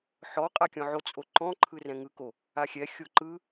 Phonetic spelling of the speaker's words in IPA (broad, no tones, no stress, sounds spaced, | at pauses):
ħ ɔ qʼ a kʲ ɔ̃ ʕ o t͡sʼ o ǃ ɔ̃ ǃʰ ɯ r ɛ̃ ŋ ɯ k o | a xʲ ɛ xʲ o ǃ ɯ